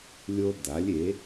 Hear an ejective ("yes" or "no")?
no